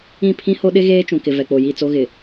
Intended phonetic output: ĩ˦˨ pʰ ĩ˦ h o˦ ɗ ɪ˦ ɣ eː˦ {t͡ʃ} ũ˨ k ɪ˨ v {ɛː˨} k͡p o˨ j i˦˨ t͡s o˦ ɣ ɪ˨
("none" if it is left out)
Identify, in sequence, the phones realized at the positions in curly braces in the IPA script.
t͡ʃ, ɛ˨

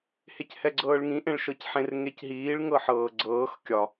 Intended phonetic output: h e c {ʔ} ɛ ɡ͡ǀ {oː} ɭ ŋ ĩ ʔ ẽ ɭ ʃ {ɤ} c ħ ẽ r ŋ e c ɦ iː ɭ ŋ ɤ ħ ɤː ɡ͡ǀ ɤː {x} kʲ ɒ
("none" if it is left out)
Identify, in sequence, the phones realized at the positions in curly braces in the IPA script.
h, ɤː, ɤ, x

